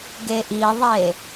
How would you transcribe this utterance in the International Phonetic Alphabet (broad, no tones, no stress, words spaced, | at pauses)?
ɡeʔiðˤe